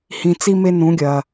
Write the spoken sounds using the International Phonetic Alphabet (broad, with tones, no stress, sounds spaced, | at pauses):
h ĩ˨ t͡s i˧ m e˧ n ũ˨˦ ɡʲ ɐ˨